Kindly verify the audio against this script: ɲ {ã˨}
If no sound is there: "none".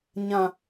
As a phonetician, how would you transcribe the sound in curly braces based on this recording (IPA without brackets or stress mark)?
ã˨